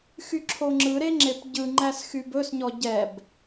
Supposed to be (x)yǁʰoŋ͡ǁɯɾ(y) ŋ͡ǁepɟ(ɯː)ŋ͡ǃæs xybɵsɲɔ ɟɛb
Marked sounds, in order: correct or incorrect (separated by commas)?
correct, incorrect, incorrect